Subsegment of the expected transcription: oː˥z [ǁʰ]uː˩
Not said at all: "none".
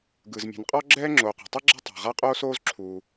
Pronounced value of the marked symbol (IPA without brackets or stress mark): ǁʰ